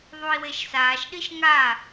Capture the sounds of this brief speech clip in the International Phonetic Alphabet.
ðˤ u i̯ w e ʃ s aː ʃ ɗ i ʃ ŋ a

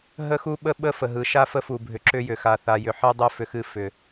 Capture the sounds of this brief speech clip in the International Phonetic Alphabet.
ɦ ə˦ x u˦ ɓ ə˦ ɓ ə˦ f ə˨ ɦ ɯ˨ ʃ a˦ f ə˦ f u˨ bʱ ʏ˨ ǁ ʏ˦ j ʏ˨ x a˨ θ a˨ j ʏ˨ ħ ɨ˦ dˤ ɨ˦ f ʏ˦ x ɨ˦ f ʏ˨

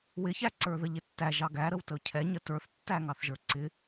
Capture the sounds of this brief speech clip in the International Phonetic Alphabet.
w ɪ ç æ ǀ ə˞ ð ə ʎ ɪ tː æ ʒ ɑ ɡ æ ɾ ə w t ə ʊ̯ cʰ ɛ ɲ ə t ə˞ θ tː æ ŋ ɑ θ ʒ ə˞ ǀ ɪ

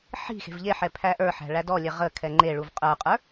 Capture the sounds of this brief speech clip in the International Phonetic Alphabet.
ħ i̤ x e̤ v ʎ e ħ ɛ pʰ æ ʔ ə˞ ħ æ̤ ɭ æ d ɔ lʲ ɛ ʁ ə kʰ ɛ ŋ͡ǃ e ɭ u v qʼ ə˞ qʼ ə˞

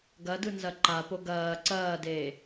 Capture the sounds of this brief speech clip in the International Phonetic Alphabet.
ɡ ɐ d ɯ n z ɐ ǃ a p o ɡ ɐː ǀ ɐː d eː

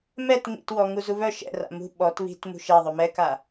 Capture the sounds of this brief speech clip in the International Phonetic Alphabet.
m ɛ t ŋ ḭ t w ɔ ŋ u z u β œ ʃ ɛ̰ r a̰ m ṳ ɓ ɔ t β i̤ t m ṳ ʃ ɛ ðˤ o m ɛ k a

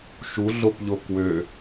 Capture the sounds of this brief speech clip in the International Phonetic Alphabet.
ʃ u ɮ o p ʎ o k w ø

